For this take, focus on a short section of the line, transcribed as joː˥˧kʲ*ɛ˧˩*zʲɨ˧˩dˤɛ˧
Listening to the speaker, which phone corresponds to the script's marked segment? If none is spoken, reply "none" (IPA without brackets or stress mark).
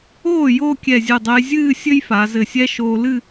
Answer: ɛ˧˩